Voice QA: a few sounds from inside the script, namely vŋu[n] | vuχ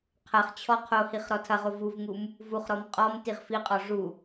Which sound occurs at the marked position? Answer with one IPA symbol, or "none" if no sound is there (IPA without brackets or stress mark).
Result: m